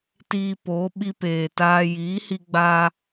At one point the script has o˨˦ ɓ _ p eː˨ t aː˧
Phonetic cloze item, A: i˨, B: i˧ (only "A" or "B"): B